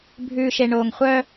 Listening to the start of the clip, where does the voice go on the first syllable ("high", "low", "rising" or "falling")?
low